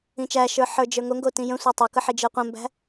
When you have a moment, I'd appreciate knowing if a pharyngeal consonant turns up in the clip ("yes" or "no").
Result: yes